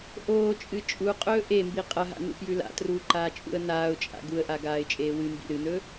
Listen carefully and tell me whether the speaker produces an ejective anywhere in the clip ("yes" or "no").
yes